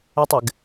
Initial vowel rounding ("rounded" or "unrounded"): unrounded